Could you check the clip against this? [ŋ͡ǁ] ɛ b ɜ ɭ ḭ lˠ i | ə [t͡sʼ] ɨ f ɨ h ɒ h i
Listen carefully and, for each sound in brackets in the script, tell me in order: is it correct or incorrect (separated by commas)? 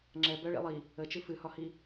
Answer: correct, incorrect